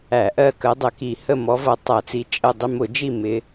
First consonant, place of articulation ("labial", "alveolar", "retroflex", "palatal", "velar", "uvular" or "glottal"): glottal